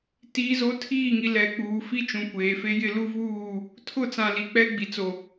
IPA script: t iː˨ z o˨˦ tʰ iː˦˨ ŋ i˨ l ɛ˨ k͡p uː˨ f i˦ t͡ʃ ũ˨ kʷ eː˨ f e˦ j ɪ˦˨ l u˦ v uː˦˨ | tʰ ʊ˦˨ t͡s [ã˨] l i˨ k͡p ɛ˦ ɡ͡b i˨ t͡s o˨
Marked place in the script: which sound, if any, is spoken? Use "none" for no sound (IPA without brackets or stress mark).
ã˨